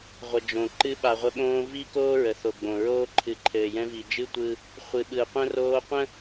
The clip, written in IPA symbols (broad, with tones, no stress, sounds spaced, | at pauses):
ʁʷ ə˨ d͡ʒ õ˨ ǃ ɨ˦ ɓ a˨ ʁʷ ə˦ ɓ õː˦ v i˦ k oː˦ ɹ ə˨ θ o˨ ɡ͡b õ˨ ɹ oː˦ ǃʰ ɨ˨ ǃʰ ɘː˨ j ɛ̃˦ v i˨ d͡ʒ ɨ˦ tʷ ɯ˦ | χʷ ɨ˨ ɓ ɯ˨ qʷ ə̃˦ r oː˦ qʷ ə̃˦